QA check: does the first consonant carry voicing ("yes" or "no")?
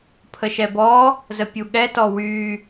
no